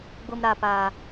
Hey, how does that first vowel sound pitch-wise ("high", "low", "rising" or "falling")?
high